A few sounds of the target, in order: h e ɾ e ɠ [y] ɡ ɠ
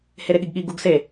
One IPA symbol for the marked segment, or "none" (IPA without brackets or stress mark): i